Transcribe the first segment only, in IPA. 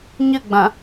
ɲ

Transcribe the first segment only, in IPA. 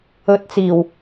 ɵ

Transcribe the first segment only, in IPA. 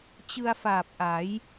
t͡ɕ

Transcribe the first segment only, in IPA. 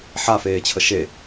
ħ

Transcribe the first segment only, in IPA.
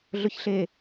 ɮ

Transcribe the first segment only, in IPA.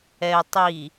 ɛ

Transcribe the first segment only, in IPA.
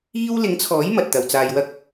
iː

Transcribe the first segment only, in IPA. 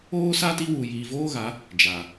oː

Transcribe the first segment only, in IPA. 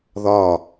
ð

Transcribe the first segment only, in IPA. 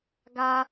ɡ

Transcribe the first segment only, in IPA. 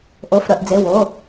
ʔ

